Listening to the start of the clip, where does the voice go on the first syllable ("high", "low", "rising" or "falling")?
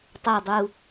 low